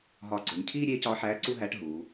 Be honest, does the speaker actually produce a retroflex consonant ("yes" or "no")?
yes